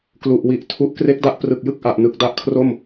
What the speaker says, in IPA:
k l u˨˩ ʔ w i˨˩ ʔ tʰ u˦˥ ʔ k r e˦˥ k̚ d a˦˥ ʔ p r ɯ˨˩ k̚ j ɯ˥˩ k̚ ʔ a˨˩ ʔ n ɯ˨˩ k̚ d a˦˥ ʔ kʰ r o˥˩ m

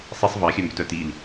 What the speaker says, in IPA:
sˤ i sˤ v ɑ xʲ œ m b ʏ t œ t i l

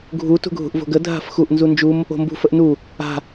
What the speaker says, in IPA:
ɡʱ u t ṳ ɡʱ ṳ ʔ v o̤ ɡ ə dʱ a̤ f x u ʔ n z u n d͡ʒ u m | o̤ m b ṳ f ə ʔ n u | a̤

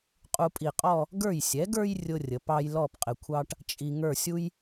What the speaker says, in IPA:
qʼ u˧ pʼ i˧˩ qʼ ɔ˥˧ | ɡ ə˞˧˩ j sʲ ɛ˩˧ ɡ ə˞˧ j rʲ ʊ˥ rʲ ə˩˧ p ɑ˥ j l ɔ˥˧ p qʼ ɪ˧˩ kʷʰ ɑ˥ ʈ | t͡ʃʼ i˧ ŋ ə˞˥˧ sʲ u˥ j

